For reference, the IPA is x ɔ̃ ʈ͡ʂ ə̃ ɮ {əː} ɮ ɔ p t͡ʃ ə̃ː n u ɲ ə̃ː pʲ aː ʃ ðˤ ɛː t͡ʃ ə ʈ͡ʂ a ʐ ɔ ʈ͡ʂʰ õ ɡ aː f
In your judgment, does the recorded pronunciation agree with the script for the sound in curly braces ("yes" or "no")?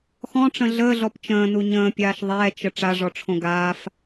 yes